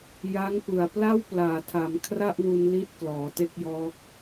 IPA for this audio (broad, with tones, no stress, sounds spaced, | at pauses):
j a˦˥ ŋ p ɯ˨˩ a̯ p l a˥˩ w p l aː˨˩ tʰ a˩˦ m kʰ r a˥˩ ʔ w u˧ n l i˦˥ t̚ k l ɔː˩˦ t e˥˩ k̚ j ɔː˦˥ k̚